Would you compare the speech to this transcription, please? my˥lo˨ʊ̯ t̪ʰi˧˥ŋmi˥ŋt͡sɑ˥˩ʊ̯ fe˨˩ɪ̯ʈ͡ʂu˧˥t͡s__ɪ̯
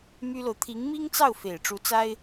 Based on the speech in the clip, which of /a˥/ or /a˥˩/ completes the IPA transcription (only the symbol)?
a˥